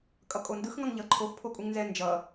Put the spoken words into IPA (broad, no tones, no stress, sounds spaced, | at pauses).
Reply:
kʼ ʌ kʼ o n d ɯ x ŋ ʌ ŋ ʎ ʌ ǃʰ o x pʰ o kʼ u ŋ n z ɛ n d͡ʒ ʌ